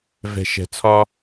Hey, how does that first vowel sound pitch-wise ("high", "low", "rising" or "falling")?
low